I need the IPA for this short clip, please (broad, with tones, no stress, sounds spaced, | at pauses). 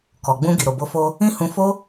k ɔ˨ ɡ͡b ũ˧ ɡ i˨ ɾ o˨ b o˧ f o˧ | ĩ˦ h ũ˧ f o˦